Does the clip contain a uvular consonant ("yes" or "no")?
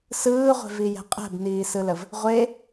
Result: yes